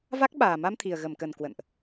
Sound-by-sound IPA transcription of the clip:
va˦˥k̚ɓaː˨˩ ma˧mt̪ʰi˨˩ə̯ɣə˧˩m kə˨˩n kwə̰˧˨nʔ

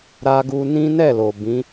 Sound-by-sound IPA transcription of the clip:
ɾa˧ɡu˧nĩ˦ nɛ˦˨ lo˨bĩ˨˦

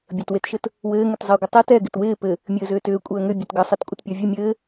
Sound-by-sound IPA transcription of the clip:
bʲətwetʃɘt | wɘːŋʏtzˤəːɡʷə tˤet ɛ ɡɪtwɪː pɘ | mʲɘːzʏːtʏː kʷʼəːŋʏ bʲətɡəsˤit kʷʼɪtpʲɔvʲɘ mʲɘː

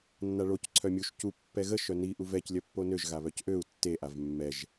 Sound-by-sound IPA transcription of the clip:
nːaɭoc ǀʰœmʲuʃ cu pːɛɣə ʃœni ʔuvɛc lʲœpːonøʒ ɣaβœcʔøu̯ tːe ʔavmːɛʒ

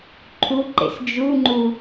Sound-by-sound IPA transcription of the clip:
ǃʰuǃḛs d͡ʒuŋ͡ǃu

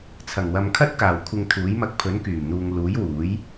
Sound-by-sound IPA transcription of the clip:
t͡sʰɐ˨˩ŋwɐ˨mkʰɐ˥t̚kaː˨˩w kʷʰɪ˧ŋt̪ʰuː˨˥jmɐ˧k̚ pʰɵ˨˥nkyː˨˩mn̪uː˨ŋluː˨˥j wuː˨˥j

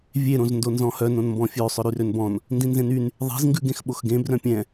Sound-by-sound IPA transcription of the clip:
vʲe ɾõzndonzɔ̃hœ nõnmbɔ̃fʲø sˤœɾyrønbɔ̃n | ndĩnzẽnyn | ðˤe̤z ŋɡʉɡẽxɓoxɡẽ brœ̃pʲɛ̃

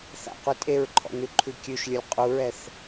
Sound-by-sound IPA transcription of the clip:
θa̰qʷe tʼeɹǃʰɔ̰nʉǃʰʉ kʲʉʃlʲʊlʲ qʼuɹɛθ

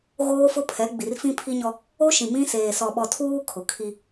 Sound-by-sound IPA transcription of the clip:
ɣoː˦fʊ˦pʰɛ˨˦ ɡ͡bi˨rfĩ˦pʰi˦ɲɔ˦ | o˦ ʃĩ˨mĩ˦ seː˨ sɔ˨ɓɔ˨tʰuː˦ kʰʊ˨ kʰi˦

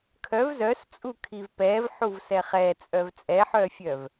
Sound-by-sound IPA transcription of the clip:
kʰœv zœst͡sʼukʰiv pɛvħuvsɛ χɛt͡sʼœv t͡sʼɛħœfʲœv

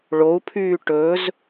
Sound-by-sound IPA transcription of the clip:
ɭou̯pʰyː ʈɵz

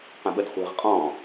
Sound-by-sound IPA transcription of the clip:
qə̃ɓədχʷɛ̤ʁ qʼɔ̃

